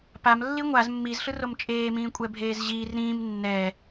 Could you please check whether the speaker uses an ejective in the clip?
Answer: yes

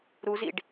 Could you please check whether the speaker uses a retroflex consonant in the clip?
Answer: yes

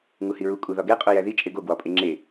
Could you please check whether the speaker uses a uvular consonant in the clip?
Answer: yes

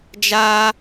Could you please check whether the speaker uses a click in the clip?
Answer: no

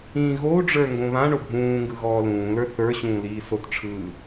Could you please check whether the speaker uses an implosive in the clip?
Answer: no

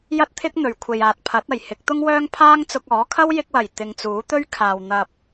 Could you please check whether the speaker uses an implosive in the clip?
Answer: no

